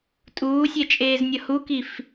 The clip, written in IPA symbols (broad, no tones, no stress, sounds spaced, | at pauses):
tʼ uː sʲ ɛ t͡ʃʼ eː z nʲ ʌ h u k i f